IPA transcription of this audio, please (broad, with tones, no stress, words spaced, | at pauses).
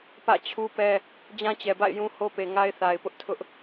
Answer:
pä̰˦˨ t͡ɕʰu˦pɛ˦ | d͡ʑã˦t͡ɕɛ˨ba̰˦˨ɪ̯ jũ˦ho˦pe˨ ŋa˦ɪ̯θa˨ɪ̯pʊ˦ʔtʰʊ˦ʔ